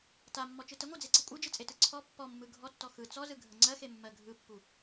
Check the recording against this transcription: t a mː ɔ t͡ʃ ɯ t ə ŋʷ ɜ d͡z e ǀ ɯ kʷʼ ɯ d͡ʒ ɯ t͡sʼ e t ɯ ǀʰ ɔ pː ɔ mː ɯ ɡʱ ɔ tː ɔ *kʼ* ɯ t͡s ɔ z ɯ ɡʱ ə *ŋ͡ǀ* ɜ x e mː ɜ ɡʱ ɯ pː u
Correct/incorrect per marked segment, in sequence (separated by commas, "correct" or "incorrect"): incorrect, correct